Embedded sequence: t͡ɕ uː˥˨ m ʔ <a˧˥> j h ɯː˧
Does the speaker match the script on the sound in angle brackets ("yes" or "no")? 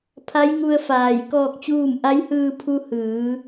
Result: yes